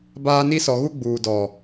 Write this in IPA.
b aː˦ n i˦ s ɔ˨ ɣ u˦ ɡ͡b uː˨ d ɔ˨

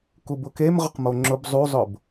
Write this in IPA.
k u b ʊ k e m ʁ ʊ q m o ŋ͡ǁ ʊ b zˤ u zˤ ʊ b

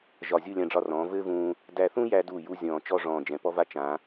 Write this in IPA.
ʒ ɒ˧˩ zʲ u˥˧ lʲ ã˧ ɖ͡ʐ ɒ˧ r ɔ̃ː˩˧ v ɘː˥ v ũː˧ | d æ˧ θ ũ˥ j æ˧ d u˧˩ j u˥ zʲ ɔ̃ː˧˩ t͡ʃ ɔ˥˧ ʐ ɔ̃ː˧˩ d͡ʒ ɛ̃˩˧ p ɔ˥ v a˥ t͡ʃ ã˩˧

